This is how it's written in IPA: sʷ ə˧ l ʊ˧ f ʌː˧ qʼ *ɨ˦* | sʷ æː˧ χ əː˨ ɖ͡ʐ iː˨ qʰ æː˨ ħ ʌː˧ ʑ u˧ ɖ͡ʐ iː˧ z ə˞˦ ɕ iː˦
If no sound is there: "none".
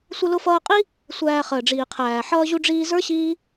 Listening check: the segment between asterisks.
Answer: i˦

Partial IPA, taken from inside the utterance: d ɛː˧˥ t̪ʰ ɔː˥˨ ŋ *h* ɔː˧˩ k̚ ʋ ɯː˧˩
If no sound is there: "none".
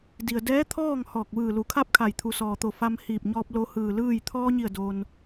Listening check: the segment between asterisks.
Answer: h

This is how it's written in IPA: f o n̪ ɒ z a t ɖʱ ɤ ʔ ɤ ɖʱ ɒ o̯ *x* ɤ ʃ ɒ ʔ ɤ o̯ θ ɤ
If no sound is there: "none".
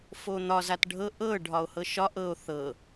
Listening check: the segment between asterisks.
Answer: h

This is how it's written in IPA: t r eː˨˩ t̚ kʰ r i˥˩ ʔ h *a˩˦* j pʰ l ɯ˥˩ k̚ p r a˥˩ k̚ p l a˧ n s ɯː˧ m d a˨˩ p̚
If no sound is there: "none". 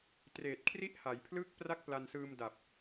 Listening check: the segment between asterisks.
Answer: a˩˦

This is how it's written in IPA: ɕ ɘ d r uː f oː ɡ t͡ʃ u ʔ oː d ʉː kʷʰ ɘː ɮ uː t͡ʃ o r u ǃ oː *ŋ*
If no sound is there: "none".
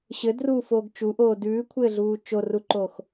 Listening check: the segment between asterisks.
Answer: x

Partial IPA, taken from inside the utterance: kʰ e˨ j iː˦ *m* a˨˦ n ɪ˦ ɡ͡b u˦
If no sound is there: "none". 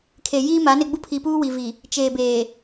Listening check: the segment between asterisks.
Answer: m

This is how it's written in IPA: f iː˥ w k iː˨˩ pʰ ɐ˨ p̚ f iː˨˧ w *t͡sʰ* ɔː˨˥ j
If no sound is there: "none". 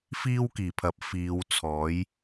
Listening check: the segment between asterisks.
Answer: t͡sʰ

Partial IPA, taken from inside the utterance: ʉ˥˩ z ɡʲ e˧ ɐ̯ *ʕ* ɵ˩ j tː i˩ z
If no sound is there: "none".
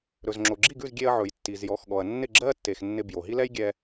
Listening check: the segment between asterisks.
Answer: ʕ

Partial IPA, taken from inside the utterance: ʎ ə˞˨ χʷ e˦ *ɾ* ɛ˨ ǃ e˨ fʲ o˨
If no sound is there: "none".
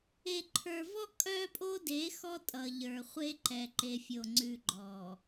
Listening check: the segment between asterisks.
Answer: ǃ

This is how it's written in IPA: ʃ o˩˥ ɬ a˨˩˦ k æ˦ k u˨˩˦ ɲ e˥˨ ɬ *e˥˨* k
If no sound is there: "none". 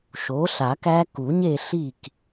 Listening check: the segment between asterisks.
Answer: i˥˨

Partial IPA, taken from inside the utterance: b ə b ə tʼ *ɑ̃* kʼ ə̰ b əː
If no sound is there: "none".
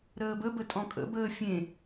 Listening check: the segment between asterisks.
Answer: ɔ̃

